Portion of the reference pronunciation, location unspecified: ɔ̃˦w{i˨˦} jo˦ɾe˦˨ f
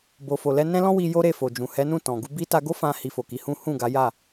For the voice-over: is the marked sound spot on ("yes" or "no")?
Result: no